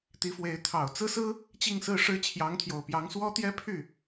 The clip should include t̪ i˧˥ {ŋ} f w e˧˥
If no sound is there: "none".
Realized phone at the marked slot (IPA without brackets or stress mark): none